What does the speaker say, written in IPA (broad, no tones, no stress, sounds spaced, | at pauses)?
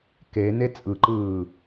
k e n e t͡sʼ ɯ ǃ ɯː